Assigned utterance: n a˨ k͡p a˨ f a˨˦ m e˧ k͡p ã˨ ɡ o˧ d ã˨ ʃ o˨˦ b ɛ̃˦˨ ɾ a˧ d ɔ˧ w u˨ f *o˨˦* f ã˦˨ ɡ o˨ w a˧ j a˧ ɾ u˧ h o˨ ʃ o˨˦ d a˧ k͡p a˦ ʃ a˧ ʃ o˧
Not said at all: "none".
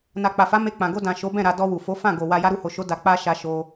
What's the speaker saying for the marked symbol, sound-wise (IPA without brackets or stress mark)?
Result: o˨˦